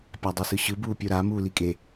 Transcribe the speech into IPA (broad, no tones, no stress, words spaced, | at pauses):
pʲadˤɛsɯɕɯ buːpʲoɾa muːlikʼe